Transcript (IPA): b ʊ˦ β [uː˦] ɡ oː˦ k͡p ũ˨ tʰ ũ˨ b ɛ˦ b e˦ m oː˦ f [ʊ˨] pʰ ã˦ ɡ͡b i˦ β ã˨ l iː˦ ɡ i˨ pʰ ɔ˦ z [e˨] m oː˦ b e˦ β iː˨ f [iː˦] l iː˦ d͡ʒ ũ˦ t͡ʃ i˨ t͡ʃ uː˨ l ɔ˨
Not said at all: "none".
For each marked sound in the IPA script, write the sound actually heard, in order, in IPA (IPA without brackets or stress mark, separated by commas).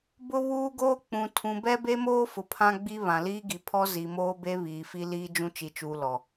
uː˦, ʊ˨, i˨, i˦